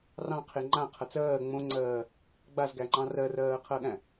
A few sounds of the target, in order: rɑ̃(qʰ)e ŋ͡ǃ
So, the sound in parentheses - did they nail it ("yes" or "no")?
yes